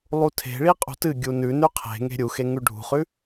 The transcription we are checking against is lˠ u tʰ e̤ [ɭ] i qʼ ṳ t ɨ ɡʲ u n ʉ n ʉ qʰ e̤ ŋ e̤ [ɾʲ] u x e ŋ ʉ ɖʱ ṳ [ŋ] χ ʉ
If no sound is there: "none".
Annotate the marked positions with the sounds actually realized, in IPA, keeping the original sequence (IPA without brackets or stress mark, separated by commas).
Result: ɭ, ɾʲ, none